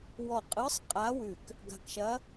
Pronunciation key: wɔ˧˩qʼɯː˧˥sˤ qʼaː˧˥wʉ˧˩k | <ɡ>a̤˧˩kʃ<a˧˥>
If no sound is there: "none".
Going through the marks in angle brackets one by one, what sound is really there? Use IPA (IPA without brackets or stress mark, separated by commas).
ɡ, ɐ˧˥